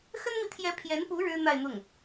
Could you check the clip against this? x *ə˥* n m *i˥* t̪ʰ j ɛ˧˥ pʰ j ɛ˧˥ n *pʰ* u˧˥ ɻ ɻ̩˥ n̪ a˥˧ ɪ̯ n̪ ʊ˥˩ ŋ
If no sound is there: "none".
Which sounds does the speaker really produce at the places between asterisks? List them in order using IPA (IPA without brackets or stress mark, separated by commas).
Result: ə˥, i˨, p